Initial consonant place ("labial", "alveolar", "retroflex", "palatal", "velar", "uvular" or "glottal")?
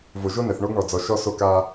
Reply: labial